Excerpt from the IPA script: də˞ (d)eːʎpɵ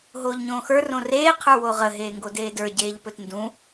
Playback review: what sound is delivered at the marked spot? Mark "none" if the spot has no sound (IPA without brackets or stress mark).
ɟ